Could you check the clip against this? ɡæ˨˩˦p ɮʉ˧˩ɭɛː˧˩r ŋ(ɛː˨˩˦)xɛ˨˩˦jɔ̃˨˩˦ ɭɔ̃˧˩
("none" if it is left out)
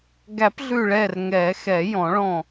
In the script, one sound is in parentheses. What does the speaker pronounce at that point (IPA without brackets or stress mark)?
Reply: ɛː˨˩˦